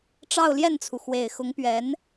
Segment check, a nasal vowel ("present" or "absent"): absent